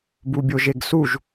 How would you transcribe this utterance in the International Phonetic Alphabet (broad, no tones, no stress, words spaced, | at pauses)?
bubʲoʒeɡsuʒ